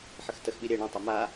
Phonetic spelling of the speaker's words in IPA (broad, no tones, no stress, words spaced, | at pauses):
ħəxtəxɓi ɾʲɛ ɳõtˤo ma